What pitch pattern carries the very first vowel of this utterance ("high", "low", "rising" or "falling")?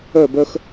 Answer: falling